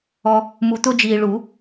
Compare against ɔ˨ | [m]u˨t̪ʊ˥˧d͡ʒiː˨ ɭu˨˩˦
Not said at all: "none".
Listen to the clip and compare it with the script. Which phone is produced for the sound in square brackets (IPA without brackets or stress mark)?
m